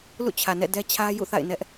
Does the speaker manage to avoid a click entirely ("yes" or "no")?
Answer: yes